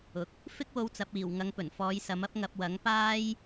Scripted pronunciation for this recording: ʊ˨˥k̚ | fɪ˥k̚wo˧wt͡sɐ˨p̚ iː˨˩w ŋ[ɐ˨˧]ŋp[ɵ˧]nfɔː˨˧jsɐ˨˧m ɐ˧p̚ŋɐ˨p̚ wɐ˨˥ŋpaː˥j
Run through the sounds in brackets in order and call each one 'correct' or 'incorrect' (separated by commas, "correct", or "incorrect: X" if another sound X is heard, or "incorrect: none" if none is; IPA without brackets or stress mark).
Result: correct, incorrect: ɵ˨˩